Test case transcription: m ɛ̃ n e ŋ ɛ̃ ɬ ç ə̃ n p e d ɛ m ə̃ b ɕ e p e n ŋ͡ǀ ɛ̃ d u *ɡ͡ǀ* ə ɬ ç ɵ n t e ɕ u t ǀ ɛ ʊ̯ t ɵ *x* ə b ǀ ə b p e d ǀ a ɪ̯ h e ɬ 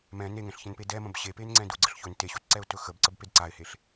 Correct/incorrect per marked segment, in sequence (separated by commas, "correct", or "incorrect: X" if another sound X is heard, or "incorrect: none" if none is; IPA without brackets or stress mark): correct, correct